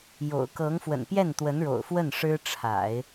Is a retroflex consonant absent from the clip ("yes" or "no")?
no